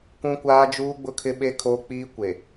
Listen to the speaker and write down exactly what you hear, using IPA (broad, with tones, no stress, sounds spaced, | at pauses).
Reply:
kʷ ũ˦ kʷ aː˦ d͡ʒ uː˦ ɡ͡b ʊ˦ kʰ ɪ˦ ɓ e˦ kʰ oː˦ k͡p iː˦ kʷ e˨